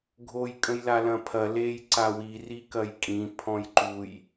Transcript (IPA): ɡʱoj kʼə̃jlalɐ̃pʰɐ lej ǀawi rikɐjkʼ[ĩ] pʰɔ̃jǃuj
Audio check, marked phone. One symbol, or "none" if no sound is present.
ĩ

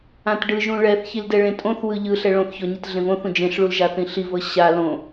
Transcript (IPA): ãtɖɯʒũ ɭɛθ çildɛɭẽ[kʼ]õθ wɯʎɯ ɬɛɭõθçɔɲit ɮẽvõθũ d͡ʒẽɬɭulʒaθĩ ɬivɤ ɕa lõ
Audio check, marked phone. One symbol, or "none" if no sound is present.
tʼ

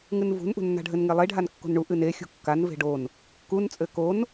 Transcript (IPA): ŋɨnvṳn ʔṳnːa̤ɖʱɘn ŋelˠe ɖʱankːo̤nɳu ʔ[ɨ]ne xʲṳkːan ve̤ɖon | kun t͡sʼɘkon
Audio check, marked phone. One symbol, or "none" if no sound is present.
ɨ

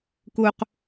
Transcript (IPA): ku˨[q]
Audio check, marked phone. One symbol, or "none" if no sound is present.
q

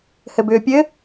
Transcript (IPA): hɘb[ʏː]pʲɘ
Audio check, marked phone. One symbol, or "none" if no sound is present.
ʏː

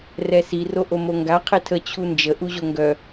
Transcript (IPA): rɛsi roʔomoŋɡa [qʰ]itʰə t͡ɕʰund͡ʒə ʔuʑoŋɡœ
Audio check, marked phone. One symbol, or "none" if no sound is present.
qʰ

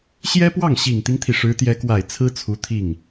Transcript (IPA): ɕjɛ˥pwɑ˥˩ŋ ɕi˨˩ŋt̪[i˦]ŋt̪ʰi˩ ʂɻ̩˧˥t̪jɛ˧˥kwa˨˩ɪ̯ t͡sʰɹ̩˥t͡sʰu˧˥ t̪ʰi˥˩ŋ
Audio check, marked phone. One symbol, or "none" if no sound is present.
i˦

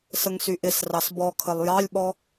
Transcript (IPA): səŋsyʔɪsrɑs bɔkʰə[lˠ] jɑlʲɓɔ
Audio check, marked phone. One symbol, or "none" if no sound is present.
lˠ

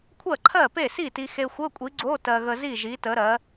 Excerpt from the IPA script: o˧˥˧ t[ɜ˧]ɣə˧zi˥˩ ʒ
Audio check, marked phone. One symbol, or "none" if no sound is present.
ɜ˧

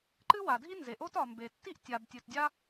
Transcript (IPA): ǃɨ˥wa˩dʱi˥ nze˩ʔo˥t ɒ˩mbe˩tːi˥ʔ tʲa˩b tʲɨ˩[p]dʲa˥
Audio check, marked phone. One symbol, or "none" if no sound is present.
t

